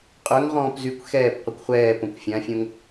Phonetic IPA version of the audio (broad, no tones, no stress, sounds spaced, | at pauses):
qʼ œ ŋ ʁ ɔ̃ː p z y kʷ x ɛː p qʷ ə kʷ χʷ ɛː p õ kʷ fʲ ã fʲ õ ŋ